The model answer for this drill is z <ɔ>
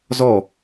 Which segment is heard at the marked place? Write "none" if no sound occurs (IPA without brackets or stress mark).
ɔ